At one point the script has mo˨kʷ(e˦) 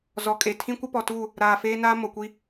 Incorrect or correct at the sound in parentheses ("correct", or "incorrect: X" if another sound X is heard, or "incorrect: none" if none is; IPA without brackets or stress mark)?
incorrect: i˦